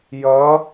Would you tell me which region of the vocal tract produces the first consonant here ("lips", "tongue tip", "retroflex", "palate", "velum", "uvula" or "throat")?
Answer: palate